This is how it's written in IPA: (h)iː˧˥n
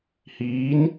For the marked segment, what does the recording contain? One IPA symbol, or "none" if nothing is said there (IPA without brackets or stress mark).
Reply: h